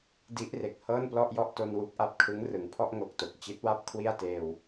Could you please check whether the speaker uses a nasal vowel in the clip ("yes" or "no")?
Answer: no